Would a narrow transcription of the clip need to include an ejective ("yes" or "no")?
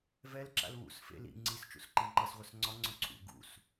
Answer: no